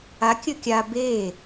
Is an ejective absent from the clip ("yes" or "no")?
yes